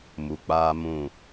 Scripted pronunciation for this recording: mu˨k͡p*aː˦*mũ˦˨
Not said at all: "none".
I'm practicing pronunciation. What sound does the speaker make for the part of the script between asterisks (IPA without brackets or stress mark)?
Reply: aː˦